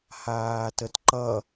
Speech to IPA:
h aː t ə t ǃ ʌ

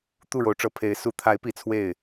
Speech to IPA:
t̪ u˥˩ ɻ o˧˥ ʊ̯ ʈ͡ʂ ɤ˨˩ pʰ e˧˥ ɪ̯ s u˨˩ t̪ʰ a˧˥ ɪ̯ p i˨˩ t͡sʰ w e˥˩ ɪ̯

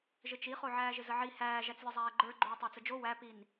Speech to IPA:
ʒ ɘ t͡ʃ i χ o ʕ æː ʒ ɪ z ə ʕ i h æː ʒ æ t͡s lʲ ɘ zˤ æː ɡ͡ǃ ə˞ ɡ͡ǃ oː tˤ æ t͡s ə d͡ʒ o w æ p i n

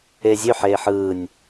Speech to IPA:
e zʲ ø ħ eː ħ ɯː nʲ

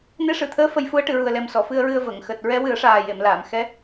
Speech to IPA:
n e˧˥ ʂ ɨ˨˩˨ t̪ʰ əː˧˥ f ə˧ j f u˧˥ ə̯ ʈ ɨ˨˩˨ ɹ u˨˩ ə̯ l ɛ˨˩ m s ɔ˨˩˨ f ɨ˧ ə̯ ɹ ɨ˧ ə̯ v ə˨˩˨ ŋ x əː˨˩ t̚ ɹ ɛ˧˥ w ɨ˨˩˦ ə̯ ʂ aː˨˩ j e˨˩˨ m l aː˨˩˨ m x ɛ˧˥

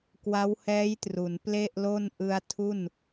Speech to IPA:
k w a˦˥ w h ɛː˦˥ j t r u˩˦ n p l e˥˩ ʔ l o˥˩ n ʔ ɯ˧ a̯ tʰ u˥˩ n

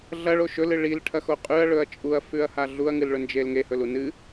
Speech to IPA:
ɮ ɐ ɭ o ʃ ɵ l ɨ ɭ i l ʈʰ ɐ x o qʼ ʉ ɐ̯ ɭ ɵ ɐ̯ t͡ʃʼ u ɐ̯ f ʉ ɐ̯ h a ɮ u ɐ̯ ŋ ɨ l ɭ ɵ n d͡ʒ e l ŋ e h ɵ l u n ɨ

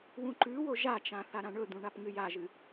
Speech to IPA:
w ũ ǃ ʉ w o ʒ a t͡ʃ ã θ a ɾ ã ɳ ɵ d̪ ũ ɳ a p ŋ ɨ j a ʒ ɨ

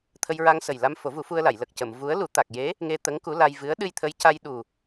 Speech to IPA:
t̪ʰ ə˧ j ɹ a˧ ŋ s ə˨˩ j l a˧ m f o˨˩˦ v u˨˩˦ f u˧ ə̯ l a˨˩˨ j l ə˨˩ k̚ c ə˨˩˨ m v u˧˥ ə̯ l u˨˩˦ t̪ a˨˩ k̚ j e˧˥ | ŋ e˧ t̪ ə˧˥ ŋ k u˧˥ l a˧ j v ɨ˧˥ ə̯ ɗ ɨ˧ j t̪ʰ ə˧˥ j c a˧ j ɗ u˨˩

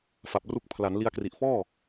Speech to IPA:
f a˨˩ p̚ r u˦˥ k̚ pʰ l a˩˦ n l i˧ a̯ k r i˨˩ ʔ f ɔː˥˩

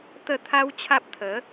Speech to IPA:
t̪ ə˥˧ t̪ʰ a˦ w t͡ɕʰ a˦ p̚ t̪ʰ ə˨˦

